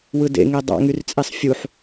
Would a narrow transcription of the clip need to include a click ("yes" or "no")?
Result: no